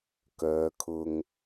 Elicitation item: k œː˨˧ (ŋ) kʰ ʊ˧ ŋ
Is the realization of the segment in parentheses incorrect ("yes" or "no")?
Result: yes